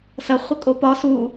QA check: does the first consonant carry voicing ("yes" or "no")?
no